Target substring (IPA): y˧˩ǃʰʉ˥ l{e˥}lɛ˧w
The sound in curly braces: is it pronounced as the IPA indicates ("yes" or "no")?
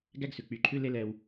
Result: yes